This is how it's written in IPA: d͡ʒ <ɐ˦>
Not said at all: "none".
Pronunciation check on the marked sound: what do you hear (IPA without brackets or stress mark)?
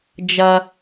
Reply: ɐ˦